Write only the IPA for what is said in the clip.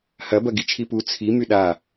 h ɐ b ɐ ɡ i t͡ʃʰ i p u t͡sʰ i m y ɗ a

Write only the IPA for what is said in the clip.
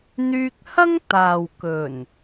n̪ yː˧ k̚ h ɐ˥ ŋ t̪ aː˨ w k ɵ˨˩ n

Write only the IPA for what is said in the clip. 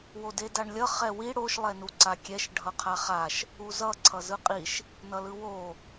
w o d e d a ɳ lʲ ʌ χ ɛ w i ɽ o ʃ lˠ ɛ n u ǀ a kʲ ɛ ʃ ɖʱ ʌ qʰ a χ a ʃ | u z ʌ ǀʰ ʌ z ɯ qʼ i ʃ | n ʌ l ɯ w o

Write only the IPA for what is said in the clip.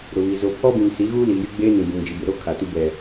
ɾ ʊ˨ β i˨ z o˨ pʰ ɔ˦ b ĩ˨ n s i˨˦ ɣ uː˦ l iː˨ j ɪ˦ ɡ͡b eː˦ n ĩ˨ b ũ˨ ŋ d͡ʒ i˨ b ɪ˨ ɾ o˦ kʰ a˨ t i˦ b ɛ˨

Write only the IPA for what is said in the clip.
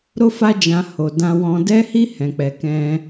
ɾ o˦ f a˦ d͡ʒ ã˧ h o˧ d ã˧ w ɔ̃˧ d ɛ˦ h i˦ h ɛ̃˧ k͡p ɛ˧ k ɛ̃˦

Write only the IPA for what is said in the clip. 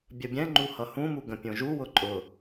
bʲ ə bʲ ɛ̃ ŋ͡ǃ u h ʌ h ũ m u ɡ ə̃ pʲ õ ʒ u w ʊ ǃʼ ʊ

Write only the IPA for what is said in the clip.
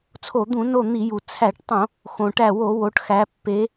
t͡sʰ o˧˩˧ d̪ ũ˧˩˧ n o˧˩ n̪ i˧˩˧ j u˩ t͡sʰ æ˧˩˧ ʈ tˤ õ˧˩˧ | x õ˩ ʈ æ˧˩ w o˧˩˧ w o˩˧ ʈ x æ˩˧ pː e˩˧

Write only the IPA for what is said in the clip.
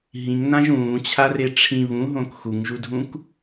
ɦ ĩ ŋ n ã ʒ ũː t͡ɕʰ a r e ʈ͡ʂʰ ĩ β ũ ɦ õ k x u ŋ ʒ u dʱ ũ k

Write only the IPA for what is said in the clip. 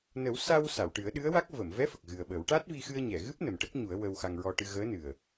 n ə˨˩˦ w s a˧ w s a˨˩˨ w ʈ ɨ˨˩˦ ə̯ ɗ ɨ˧˥ ə̯ w a˦˥ k̚ v ə˨˩˨ m v ɛ˧˥ f ə˨˩ k̚ ɣ ɨ˨˩ ə̯ ɓ ə˨˩˦ w ʈ a˦˥ t̚ v i˧ x ɨ˧ ə̯ ɲ ɛ˨˩˨ ɣ ɨ˦˥ p̚ n ə˨˩ m ʈ ə˦˥ k̚ ɲ u˨˩˦ ə̯ w ə˧ w x a˧ ŋ ɹ ɔ˧ ʈ ɨ˧ ɣ əː˧˥ n ɨ˨˩ ə̯

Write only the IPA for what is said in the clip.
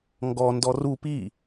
ŋ ɡ ɔ n d ɔ r u p i

